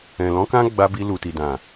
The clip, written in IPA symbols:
ɛ̃˨ l ɔ̃˨˦ k ã˦ ɡ͡b a˧ b i˧ l u˨ t i˨ d ã˨

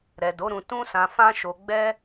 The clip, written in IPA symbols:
ɾ ɛ˨ d o˨˦ ɾ ũ˧ t ũ˦ s ã˧ f ã˦ ʃ o˧ ɡ͡b ɛ˦

